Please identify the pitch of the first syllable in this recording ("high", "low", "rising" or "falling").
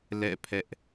falling